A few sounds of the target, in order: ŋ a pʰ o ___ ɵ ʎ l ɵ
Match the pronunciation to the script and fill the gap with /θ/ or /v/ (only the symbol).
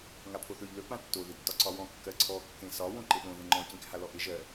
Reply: θ